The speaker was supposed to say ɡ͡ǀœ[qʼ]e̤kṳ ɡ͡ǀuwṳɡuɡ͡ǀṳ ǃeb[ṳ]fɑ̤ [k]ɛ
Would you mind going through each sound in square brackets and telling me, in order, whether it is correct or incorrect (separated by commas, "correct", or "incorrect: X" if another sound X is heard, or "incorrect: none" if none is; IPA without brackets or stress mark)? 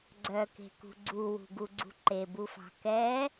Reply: incorrect: k, incorrect: u, correct